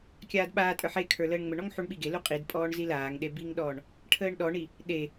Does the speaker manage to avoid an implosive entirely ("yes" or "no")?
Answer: no